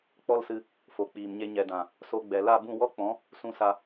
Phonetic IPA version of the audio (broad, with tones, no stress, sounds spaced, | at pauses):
k͡p ɔ˦ l s ɨ˧ | f o˨ k͡p iː˨ m ɲ e˧ ɲ ɛ˨ d ã˨ | s o˧ ɡ͡b ɛ˨ l a˦˨ b ũ˦˨ w ɔ˦ k͡p ɔ̃˨˦ | s ũ˧ s a˧